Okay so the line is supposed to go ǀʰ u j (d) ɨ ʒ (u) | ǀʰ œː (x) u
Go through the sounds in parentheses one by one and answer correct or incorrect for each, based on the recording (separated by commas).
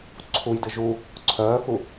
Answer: correct, correct, correct